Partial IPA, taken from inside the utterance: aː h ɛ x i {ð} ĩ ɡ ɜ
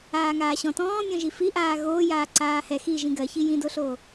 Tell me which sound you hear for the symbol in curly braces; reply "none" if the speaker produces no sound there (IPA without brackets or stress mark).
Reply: ʒ